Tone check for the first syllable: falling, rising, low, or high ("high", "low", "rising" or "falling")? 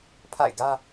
falling